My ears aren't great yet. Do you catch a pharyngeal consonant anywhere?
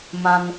no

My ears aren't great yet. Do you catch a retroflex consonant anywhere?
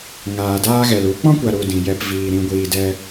no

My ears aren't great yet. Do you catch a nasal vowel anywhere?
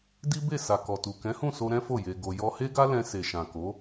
yes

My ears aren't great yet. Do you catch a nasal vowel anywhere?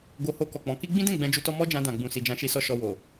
yes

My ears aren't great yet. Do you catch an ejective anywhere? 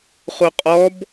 yes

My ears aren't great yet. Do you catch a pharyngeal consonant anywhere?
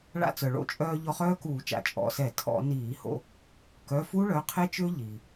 no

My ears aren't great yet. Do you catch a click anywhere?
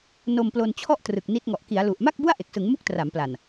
no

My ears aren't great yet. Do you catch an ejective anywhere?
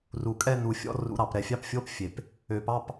yes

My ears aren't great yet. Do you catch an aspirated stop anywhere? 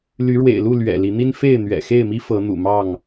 no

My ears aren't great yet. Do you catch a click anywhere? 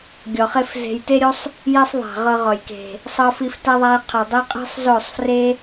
no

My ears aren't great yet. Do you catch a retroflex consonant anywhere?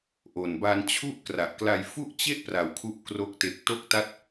no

